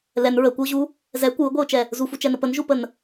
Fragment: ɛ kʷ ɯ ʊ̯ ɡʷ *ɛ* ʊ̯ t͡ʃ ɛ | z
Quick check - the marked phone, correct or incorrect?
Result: correct